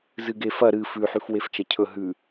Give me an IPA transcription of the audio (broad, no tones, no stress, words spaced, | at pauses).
zɨɡefɐ ɾɨ fʉħʉf weft͡ʃɐcʰɵ ɦʉ